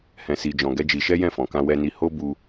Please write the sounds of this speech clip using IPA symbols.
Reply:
h ɛ̃˧ s i˧ d͡ʒ ɔ̃˧ ɡ ɛ˦ d͡ʒ i˧ ʃ ɛ˦ j ɛ̃˦˨ f ɔ̃˨ k ã˧ w ɛ˧ n i˧ h o˦ b u˧

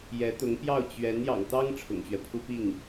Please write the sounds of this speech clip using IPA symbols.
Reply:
j ɛ˧˥ t̪ ʊ˧˥ ŋ p j ɑ˥˩ ʊ̯ t͡ɕ ɥ ɛ˧˥ n j ɑ̰˨˩ ŋ t̪ ɑ˥ ŋ ʈ͡ʂʰ ʊ̰˨˩ ŋ ɕ ɥ ɛ˦ pʰ u˥ p i˥˩ ŋ

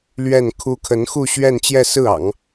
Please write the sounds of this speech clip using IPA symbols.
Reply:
l ɥ ɛ˥˩ n kʰ u˥ kʰ ə˧˥ n x u˥˧ ɕ ɥ ɛ˥˧ n t͡ɕ j ɛ˥˧ s ɹ̩˥˩ ɑ̰˨˩˦ ŋ

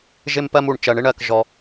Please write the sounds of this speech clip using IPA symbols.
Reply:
ʒ ɪ˦ m p ɜ˦ m u˨ ɳ t͡ʃ ɜ˩ ɳ ɪ˥ ɳ ɜ˩ k ʒ ɔ˨

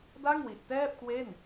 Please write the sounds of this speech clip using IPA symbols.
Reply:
d a˥˩ ŋ w i˨˩ ʔ t ɛː˥˩ p̚ k w e˥˩ n

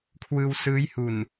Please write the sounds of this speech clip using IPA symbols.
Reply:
kʰ w ɯː˧ w s ɯː˦˥ j h u˨˩ n

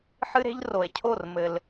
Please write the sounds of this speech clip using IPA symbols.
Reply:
ħ ɨ˦ ɾ e̤˦ ʎ r o˨ e̯ cʰ o˦˨ r m ɘ˨ l

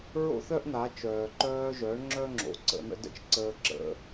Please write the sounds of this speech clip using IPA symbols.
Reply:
ɹ o̰˥ θ œ˥ ʔ n̪ a˩˧ t͡ʃ œː˩ ǃ œː˧ ʒ œ˩˧ ɳ ŋ͡ǁ œ˥ ŋ͡ǁ o̰˩˧ ǀ ə̰˩˧ n̪ ə̰˧ d ə̰˥ t͡ʃ ǀ əː˧ ǁ ə̰˩˧

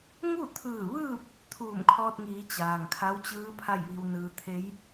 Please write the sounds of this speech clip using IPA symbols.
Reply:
ŋ u˥˨ t̪ʰ ɯː˧˩ ʋ ɯː˥˨ p̚ | t̪ʰ uː˧˩ m kʰ ɔː˧ t̚ ŋ iː˩˧ t͡ɕ aː˩ ŋ kʰ a˧˥ w t͡ɕ ɯː˧˥ pʰ a˥˨ j ʋ i˧ w n ɯː˧ t̪ʰ e˧˥ j

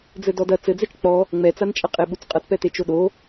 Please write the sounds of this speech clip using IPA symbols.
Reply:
d͡z ɘ d ɔ d ɐ t͡s ɘ d͡z ɛ t͡ʃ k͡p ɔ | ŋ͡m ɛ t͡s a n t͡ʃʼ ɐ qʼ e ɓ u t͡s qʼ ɐ t p ɛ t e t͡ʃ o ɗ o

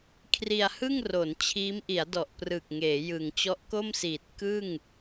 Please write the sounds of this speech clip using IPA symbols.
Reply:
kʰ r i˧ a̯ h ɯ˥˩ ŋ r o˩˦ n t͡ɕʰ iː˦˥ m ʔ i˩˦ a̯ d ɔ˨˩ ʔ p r ɯ˨˩ k̚ ŋ eː˩˦ j ɯ˨˩ ŋ t͡ɕ ɔ˦˥ ʔ k o˥˩ m s iː˨˩ t̚ k ɯ˥˩ ŋ

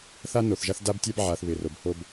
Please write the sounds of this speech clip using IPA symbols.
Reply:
θ a˦ n o˨ θ ʒ a˦ θ d a˦ b tʲ a˦ b ʕ a˨ θ β ɪ˨ r o˨ b h o˦ b

